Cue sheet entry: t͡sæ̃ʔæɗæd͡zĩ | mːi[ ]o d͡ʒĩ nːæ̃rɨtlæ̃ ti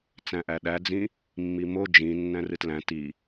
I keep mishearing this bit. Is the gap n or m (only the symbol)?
m